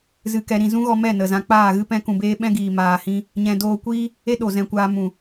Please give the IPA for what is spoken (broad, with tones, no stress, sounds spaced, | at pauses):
z ɨ˧ k ɛ˧ ɾ ĩ˨ z ũ˦ ɣ ɔ˧ m ɛ˦˨ n ə˨ z ã˧ k͡p aː˦˨ ɣ ɨ˦ p ɛ̃˧ k ũ˨ b eː˧ ɓ ɛ̃˦ ɡ iː˨ m aː˨ h ĩ˧ | ɲ ɛ̃˧ d oː˧ kʷ iː˦ | e˦ ɗ o˨ z ɛ̃˧ kʷ aː˧ m ũ˨